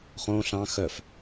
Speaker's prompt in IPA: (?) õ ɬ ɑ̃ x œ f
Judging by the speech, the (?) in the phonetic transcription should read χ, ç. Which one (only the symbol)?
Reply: χ